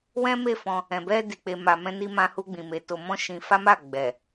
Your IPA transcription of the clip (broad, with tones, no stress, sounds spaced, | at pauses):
w ɛ̃˦ m e˦˨ f ɔ̃˧ | ɛ̃˨ b ɛ˧ d i˨ k͡p e˨ m a˨ m ɛ̃˧ n i˧ m ã˧ h u˧ ɡ͡b ĩ˨ m e˨˦ t o˧ m ɔ̃˦ ʃ ĩ˧ f a˦ m a˦˨ ɡ͡b ɛ˨